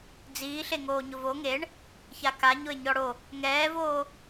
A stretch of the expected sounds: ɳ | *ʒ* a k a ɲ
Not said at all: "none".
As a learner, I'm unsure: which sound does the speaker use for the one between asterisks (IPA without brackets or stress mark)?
ç